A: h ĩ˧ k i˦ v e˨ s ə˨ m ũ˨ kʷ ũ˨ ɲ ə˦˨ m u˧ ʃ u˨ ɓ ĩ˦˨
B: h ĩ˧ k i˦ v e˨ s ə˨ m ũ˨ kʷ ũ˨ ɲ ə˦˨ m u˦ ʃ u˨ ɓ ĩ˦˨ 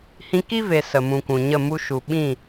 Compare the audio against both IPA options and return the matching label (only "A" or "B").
A